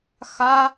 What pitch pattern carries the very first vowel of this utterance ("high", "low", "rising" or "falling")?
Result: high